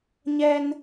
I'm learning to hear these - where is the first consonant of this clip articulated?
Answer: palate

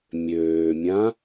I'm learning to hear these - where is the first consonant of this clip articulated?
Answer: lips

